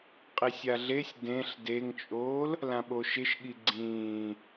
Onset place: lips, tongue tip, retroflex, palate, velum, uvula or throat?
uvula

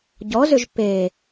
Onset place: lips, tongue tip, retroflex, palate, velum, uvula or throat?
palate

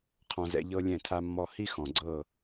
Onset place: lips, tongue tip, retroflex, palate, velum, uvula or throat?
uvula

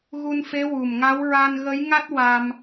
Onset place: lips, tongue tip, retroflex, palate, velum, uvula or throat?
velum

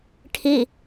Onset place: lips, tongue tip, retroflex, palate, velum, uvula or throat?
retroflex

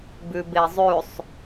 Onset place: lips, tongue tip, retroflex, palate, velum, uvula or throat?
lips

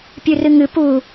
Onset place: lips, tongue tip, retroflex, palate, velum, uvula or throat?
lips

